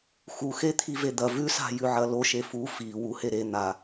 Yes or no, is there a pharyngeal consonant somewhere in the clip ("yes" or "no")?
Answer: yes